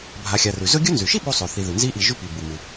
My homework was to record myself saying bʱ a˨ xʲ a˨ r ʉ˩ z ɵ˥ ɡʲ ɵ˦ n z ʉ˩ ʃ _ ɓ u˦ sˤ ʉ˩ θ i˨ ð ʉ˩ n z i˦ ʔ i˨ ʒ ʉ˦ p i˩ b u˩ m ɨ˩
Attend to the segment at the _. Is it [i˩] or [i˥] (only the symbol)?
i˥